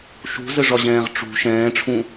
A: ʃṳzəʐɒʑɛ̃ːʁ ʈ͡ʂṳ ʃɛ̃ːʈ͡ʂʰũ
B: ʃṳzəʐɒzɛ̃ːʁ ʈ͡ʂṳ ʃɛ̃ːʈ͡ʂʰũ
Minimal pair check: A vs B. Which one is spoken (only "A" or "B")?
A